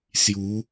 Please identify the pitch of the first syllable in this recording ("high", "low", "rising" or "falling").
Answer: rising